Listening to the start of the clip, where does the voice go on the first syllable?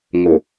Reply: low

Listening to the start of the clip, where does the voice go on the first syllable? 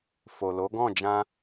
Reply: low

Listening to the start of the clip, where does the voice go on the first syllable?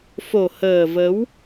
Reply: low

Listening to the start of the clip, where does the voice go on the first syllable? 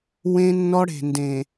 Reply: high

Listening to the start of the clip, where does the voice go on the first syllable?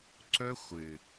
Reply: high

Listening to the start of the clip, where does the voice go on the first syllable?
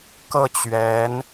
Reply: falling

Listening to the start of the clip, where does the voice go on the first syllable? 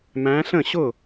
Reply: rising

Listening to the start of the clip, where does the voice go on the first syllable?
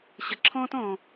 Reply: low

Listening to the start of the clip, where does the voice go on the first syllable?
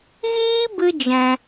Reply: high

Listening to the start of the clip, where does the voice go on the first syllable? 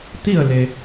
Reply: falling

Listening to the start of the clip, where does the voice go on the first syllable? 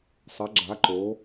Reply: rising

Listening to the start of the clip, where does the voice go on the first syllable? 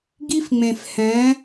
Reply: high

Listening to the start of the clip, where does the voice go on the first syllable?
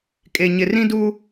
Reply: low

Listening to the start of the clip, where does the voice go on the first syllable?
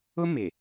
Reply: high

